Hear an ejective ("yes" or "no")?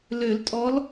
yes